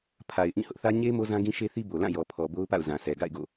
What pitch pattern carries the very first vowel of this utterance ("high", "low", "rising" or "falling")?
low